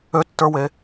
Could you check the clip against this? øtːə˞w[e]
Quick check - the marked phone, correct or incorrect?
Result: correct